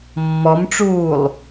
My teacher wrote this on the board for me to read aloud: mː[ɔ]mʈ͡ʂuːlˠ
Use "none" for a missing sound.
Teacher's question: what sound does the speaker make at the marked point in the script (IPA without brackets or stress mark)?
ɔ